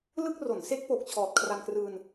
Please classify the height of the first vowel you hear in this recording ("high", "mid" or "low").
high